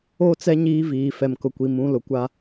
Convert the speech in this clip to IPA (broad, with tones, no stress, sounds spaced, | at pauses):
o˦˨ t͡s ɛ˦ ɲ iː˦ v iː˨ f ɛ˨ m k ʊ˨ kʷ i˨ m ũ˨˦ l ʊ˨ kʷ a˦